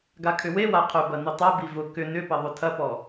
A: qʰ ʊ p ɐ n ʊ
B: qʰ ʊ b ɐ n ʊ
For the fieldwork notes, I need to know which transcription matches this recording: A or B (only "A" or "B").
B